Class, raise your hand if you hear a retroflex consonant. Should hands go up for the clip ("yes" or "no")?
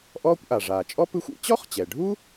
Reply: yes